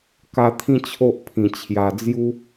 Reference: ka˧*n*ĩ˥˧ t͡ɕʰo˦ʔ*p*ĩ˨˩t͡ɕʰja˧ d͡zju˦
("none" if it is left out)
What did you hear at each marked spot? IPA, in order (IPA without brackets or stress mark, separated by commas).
t̪ʰ, pʰ